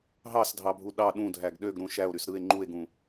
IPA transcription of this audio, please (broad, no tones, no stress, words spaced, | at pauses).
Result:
ɦɑsdʱɑbʱu ɗɑ ɗũdʱæɡ ɗøɡɾũ ʃæo̯ɾys ɾɯe̯ ŋ͡ǃue̯ɡũ